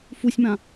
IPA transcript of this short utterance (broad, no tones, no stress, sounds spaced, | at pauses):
f u sʲ m ã